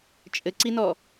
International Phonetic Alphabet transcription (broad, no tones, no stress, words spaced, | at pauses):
t͡ʃʼɘǀinɔ